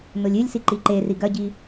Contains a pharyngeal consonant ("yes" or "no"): no